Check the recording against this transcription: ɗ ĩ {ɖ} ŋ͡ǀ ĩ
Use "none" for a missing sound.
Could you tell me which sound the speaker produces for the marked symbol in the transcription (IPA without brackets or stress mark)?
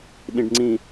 ɖ